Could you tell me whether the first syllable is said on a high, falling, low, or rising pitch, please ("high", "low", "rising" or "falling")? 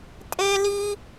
high